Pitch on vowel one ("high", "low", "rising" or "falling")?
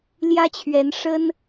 high